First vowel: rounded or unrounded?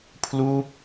rounded